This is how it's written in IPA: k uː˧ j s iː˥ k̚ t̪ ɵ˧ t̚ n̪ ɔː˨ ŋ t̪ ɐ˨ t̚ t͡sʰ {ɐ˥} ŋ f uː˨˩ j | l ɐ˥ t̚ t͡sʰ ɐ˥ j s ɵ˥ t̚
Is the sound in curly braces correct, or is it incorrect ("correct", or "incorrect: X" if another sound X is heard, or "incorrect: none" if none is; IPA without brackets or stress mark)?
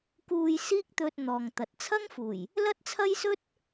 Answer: correct